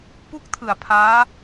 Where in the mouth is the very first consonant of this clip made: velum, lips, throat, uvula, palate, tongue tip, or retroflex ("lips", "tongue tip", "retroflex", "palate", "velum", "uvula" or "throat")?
lips